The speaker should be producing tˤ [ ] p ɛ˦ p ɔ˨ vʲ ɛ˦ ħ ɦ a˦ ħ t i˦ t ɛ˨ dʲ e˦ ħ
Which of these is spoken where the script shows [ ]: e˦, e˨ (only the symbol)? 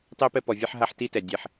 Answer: e˦